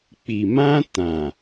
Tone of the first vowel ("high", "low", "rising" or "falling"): low